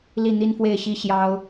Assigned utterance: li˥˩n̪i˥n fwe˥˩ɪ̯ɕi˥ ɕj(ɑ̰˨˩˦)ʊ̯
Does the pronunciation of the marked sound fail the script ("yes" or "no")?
yes